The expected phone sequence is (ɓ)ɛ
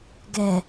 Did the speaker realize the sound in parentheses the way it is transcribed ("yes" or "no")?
no